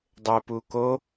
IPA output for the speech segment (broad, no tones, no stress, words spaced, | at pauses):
dˤɘpu ko